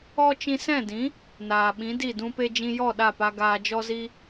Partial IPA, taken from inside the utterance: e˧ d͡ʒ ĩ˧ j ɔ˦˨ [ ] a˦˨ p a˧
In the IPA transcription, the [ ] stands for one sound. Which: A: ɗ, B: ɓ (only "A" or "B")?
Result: A